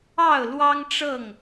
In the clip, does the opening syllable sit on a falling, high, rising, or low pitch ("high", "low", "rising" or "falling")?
falling